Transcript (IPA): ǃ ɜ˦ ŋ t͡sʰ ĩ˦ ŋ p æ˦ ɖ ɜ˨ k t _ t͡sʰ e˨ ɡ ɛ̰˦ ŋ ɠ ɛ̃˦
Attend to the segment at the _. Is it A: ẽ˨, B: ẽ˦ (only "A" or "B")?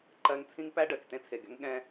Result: B